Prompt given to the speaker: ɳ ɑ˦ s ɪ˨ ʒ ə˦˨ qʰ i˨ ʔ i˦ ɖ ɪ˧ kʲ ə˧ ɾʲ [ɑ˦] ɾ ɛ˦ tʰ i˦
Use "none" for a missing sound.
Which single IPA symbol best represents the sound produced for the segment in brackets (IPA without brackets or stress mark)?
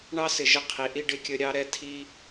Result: ɑ˦